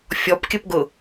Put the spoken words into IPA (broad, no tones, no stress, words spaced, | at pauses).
fʲɔpkʲəpɡʊ